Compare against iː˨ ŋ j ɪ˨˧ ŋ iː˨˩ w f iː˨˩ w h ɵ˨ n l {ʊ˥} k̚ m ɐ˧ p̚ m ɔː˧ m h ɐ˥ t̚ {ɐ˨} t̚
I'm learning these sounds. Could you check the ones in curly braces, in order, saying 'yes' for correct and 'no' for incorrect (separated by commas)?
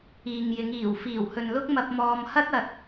yes, yes